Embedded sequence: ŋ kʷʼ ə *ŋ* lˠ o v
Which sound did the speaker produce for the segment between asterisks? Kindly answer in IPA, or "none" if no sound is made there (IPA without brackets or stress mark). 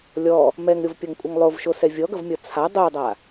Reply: ŋ